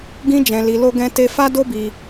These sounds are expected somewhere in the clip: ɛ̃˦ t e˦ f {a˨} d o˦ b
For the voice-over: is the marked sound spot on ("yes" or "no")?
no